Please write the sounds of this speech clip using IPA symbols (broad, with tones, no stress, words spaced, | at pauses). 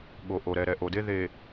ɠo˨ʔo˨ ɾɛ˨ ɾɛ˨ʔo˨de˦ ðe˨